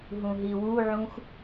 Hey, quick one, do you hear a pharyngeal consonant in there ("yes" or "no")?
yes